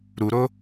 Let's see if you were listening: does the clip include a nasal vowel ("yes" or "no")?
no